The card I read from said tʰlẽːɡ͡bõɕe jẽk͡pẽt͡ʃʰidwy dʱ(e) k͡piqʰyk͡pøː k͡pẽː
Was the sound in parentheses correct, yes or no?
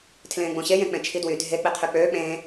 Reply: yes